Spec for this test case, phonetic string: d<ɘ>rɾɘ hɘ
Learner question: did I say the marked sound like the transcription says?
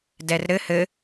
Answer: no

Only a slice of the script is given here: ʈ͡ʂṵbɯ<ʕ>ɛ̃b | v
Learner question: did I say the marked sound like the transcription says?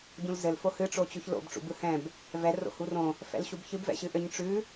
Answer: no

